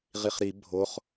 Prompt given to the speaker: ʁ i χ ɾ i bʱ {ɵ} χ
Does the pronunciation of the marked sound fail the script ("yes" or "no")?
yes